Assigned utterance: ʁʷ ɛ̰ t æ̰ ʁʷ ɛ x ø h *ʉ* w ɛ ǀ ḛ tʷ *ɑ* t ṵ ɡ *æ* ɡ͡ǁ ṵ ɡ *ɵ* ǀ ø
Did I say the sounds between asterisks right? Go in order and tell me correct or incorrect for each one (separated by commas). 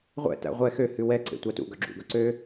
correct, correct, incorrect, correct